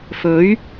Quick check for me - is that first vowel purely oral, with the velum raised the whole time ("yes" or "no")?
yes